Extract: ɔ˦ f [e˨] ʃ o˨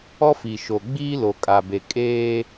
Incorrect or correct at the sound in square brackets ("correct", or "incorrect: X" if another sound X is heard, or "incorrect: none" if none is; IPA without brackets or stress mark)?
incorrect: i˨